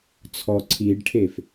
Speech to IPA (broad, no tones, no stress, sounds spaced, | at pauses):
t͡sʰ ɔ ǀʰ i ɖ ʈʰ e f